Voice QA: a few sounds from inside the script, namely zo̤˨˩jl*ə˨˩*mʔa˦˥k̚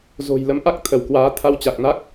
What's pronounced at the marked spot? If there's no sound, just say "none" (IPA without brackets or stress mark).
ə˨˦